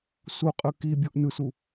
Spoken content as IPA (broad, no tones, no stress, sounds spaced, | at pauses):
s u qʼ ɯ k i bʲ o ʔ n ɯ s u